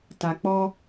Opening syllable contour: low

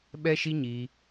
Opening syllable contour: high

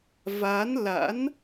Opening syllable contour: rising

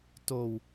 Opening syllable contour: low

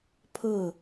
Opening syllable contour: falling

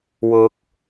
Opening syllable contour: rising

